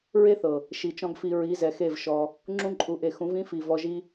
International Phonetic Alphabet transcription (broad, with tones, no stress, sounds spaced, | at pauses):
ɹ e˦ θ ɤ˨ | ʃ i˨ t͡ʃ ɔ̃˦ ɡ f i˧ ɹ i˨˦ z ɛ˨ x e˦˨ v ʃ ɔ˧ | ŋ͡ǁ ũ˧ ǃʼ u˨ ʔ e˨ x ũ˨˦ v ĩ˦ f i˨ v ɔ˧ ʒ i˦